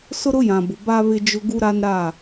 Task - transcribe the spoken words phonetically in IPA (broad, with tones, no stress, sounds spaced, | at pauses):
s ʊ˦ ɾ ʊ˦ j ã˨ b ʊ˨ b a˦ β ɪ˦ d͡ʒ ʊ˦ ɡ u˦ ɾ a˦ n ɾ a˦˨